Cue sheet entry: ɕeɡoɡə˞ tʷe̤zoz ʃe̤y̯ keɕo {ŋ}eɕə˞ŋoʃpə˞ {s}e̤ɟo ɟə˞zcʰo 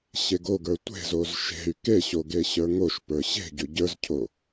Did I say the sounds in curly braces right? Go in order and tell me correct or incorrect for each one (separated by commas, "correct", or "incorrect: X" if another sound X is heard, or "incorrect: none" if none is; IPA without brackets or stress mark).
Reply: incorrect: ɡ, incorrect: ɕ